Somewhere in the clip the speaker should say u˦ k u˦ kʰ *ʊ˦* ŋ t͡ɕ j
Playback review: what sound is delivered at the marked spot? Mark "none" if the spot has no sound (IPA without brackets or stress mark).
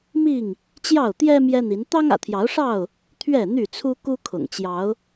ʊ̰˨˩